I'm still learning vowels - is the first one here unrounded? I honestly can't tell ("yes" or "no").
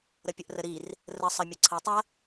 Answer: yes